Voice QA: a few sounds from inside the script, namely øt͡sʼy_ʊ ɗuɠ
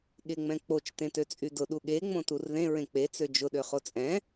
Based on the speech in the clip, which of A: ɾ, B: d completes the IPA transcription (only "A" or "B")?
B